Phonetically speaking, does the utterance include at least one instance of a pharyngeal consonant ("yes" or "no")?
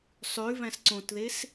no